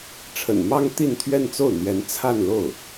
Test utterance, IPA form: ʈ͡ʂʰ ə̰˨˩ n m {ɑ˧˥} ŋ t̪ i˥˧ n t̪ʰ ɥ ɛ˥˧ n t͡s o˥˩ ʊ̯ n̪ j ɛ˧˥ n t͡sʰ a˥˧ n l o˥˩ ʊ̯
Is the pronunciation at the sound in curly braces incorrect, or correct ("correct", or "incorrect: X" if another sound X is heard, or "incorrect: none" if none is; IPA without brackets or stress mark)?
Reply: incorrect: ɑ˥